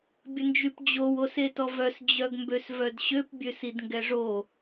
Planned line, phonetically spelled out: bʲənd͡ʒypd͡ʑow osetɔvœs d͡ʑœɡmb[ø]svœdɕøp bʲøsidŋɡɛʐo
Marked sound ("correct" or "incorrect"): correct